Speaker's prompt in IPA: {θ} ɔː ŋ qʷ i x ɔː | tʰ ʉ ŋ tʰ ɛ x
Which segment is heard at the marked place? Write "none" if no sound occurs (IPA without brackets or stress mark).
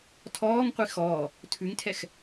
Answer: tʰ